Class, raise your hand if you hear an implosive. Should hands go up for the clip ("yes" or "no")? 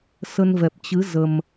no